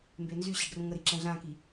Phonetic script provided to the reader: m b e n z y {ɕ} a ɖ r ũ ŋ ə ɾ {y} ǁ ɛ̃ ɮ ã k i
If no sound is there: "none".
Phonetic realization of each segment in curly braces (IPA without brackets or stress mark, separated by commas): ɕ, i